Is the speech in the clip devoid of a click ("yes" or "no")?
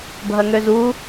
yes